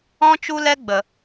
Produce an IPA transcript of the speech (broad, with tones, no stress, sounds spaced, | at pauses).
ɔ̃˦ t͡ʃ u˦ l ɛ˦ ɡ͡b ə˨